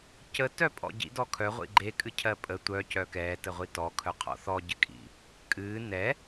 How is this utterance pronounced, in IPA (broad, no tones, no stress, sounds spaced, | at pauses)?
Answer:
c ə t œ pʼ ɔ̰ ɟ ḭ d ɔ kʰ œ ʁʷ ḭ ɡ͡ǃ e kʼ ɨ cʰ ɜ pʼ ə tʷ œ c œ k ɛː t ə ʁʷ i t ɔ kʰ œ qʰ ɔ̰ θ ɔ ɟ ɨ kʼ ḭ | kʼ ɨː n ɛ